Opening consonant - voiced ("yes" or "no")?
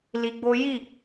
yes